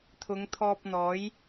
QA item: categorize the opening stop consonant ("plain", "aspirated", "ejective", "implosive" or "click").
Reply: aspirated